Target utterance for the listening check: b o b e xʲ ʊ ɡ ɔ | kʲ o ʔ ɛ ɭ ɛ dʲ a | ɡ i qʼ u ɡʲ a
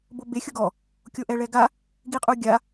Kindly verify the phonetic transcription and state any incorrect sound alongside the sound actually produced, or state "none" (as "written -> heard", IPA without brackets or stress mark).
dʲ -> ɡ